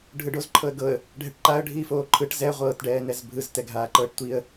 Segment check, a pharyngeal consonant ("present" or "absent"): absent